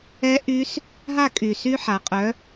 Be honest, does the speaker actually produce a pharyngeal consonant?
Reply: yes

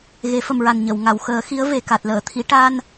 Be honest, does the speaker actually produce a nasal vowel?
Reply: no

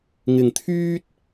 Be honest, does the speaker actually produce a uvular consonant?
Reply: no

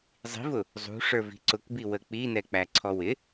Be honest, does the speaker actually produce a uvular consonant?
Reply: no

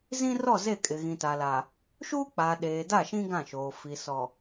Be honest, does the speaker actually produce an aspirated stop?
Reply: no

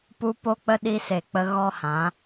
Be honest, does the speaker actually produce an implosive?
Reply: yes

